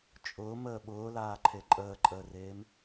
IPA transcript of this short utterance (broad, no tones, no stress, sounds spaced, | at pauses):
t͡ʃʼ ʊː m əː ɓ ʊː l aː ǃʰ e ǃʼ əː ǃʼ əː r eː m